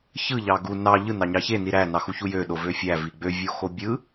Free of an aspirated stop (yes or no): yes